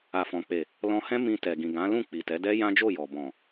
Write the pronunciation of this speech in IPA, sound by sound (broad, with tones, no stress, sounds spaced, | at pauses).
a˨ f ɔ̃˨ k͡p e˨ | l ɔ̃˧ h ɛ̃˦ m ĩ˧ t ɛ˨ ɡ ĩ˨ ɡ ã˨˦ l ũ˦˨ k͡p i˨ t ɛ˨˦ d ɛ˦ j ã˦ d͡ʒ o˦˨ j ɔ˨ b ɔ̃˨